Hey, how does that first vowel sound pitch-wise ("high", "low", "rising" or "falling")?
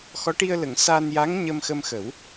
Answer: rising